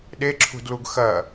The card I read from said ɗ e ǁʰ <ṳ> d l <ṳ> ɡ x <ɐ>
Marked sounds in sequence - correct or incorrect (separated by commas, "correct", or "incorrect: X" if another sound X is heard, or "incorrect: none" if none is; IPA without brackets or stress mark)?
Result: correct, incorrect: u, correct